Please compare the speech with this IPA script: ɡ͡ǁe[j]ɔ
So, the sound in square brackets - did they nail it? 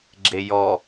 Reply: yes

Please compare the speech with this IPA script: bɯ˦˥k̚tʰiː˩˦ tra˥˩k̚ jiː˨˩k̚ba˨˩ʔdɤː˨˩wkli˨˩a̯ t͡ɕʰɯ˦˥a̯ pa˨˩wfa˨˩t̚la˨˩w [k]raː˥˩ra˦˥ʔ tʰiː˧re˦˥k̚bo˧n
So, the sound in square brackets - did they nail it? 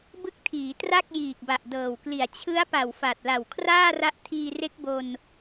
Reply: no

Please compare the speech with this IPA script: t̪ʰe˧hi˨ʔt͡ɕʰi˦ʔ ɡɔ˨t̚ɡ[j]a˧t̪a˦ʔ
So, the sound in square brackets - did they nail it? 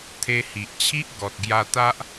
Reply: yes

